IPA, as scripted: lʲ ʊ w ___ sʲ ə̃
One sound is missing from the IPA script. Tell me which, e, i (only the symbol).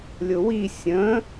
i